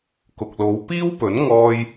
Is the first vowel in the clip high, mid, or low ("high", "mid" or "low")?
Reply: high